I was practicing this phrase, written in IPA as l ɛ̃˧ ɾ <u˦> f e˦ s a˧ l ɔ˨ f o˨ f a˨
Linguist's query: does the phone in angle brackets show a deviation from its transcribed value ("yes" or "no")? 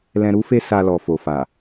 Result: no